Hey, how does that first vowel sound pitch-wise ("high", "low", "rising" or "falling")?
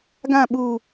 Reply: falling